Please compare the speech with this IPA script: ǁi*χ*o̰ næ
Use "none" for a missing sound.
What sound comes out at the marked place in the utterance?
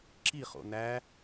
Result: χ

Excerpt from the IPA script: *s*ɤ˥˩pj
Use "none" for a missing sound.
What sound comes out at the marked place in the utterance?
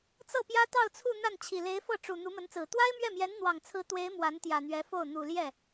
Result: t͡s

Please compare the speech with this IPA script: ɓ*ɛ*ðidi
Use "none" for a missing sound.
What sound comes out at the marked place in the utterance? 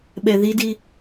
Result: ɛ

